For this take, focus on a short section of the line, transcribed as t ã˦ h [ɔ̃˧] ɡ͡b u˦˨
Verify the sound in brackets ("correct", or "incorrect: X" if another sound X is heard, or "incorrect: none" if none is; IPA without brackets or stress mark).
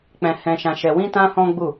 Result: incorrect: ɔ̃˦